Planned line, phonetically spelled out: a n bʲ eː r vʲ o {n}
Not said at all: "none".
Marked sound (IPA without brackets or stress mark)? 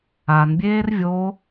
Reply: none